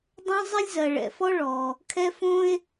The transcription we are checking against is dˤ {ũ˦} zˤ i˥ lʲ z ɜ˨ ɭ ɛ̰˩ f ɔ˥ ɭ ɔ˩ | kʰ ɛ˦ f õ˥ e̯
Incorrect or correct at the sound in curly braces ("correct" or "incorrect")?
incorrect